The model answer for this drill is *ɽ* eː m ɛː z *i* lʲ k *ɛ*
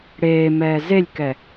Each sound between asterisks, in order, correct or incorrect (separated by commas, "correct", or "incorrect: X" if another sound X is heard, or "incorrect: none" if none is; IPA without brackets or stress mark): correct, incorrect: e, correct